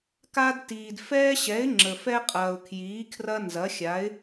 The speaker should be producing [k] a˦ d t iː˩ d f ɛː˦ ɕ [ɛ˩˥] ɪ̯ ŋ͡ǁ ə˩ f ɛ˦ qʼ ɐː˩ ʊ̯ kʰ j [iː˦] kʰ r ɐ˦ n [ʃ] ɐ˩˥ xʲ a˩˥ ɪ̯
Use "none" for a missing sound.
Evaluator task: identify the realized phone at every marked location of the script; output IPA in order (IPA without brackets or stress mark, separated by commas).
k, ɛ˩˥, iː˩˥, z